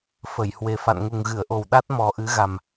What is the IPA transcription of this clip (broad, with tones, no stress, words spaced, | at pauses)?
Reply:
fə˧˩jhwe˨˩ fa̰˧˨nŋu˨˩ŋɣɨ˧˩ə̯ʔo˨˩w ɗa˦˥t̚mɔ˨˩ ʔɨ˨˦ɣa˨˩m